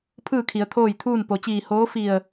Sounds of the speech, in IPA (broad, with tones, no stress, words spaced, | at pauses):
pʰɯː˥˨kʰi˩˧ə̯ t̪ʰoː˥˨jt̪ʰuː˥˨n po˩t͡ɕiː˧˩hoː˧˥ fi˧˩ə̯